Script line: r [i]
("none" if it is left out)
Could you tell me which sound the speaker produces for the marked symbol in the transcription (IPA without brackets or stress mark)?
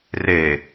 e